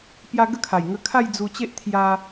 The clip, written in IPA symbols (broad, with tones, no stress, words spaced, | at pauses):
pja˧ ɡə˥˧kʰa˨˩j ŋə˧kʰa˥˧j d͡zu˧t͡ɕe˦ʔ t̪ʰja˧